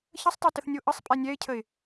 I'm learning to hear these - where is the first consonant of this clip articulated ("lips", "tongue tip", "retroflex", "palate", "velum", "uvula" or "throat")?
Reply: palate